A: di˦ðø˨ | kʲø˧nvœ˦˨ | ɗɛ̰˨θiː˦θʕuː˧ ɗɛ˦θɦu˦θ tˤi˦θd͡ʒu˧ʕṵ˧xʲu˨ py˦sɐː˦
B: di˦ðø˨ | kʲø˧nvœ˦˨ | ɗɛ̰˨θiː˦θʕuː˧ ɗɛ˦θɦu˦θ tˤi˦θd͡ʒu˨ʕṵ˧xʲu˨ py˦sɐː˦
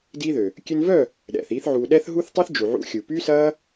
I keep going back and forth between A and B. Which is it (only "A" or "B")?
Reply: B